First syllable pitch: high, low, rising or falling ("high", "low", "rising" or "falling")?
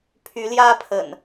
rising